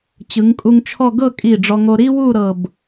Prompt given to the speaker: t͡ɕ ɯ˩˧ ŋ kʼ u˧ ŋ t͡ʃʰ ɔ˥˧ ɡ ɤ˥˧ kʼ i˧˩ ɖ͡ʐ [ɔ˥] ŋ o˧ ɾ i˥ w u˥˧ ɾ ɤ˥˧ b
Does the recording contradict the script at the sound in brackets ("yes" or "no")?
yes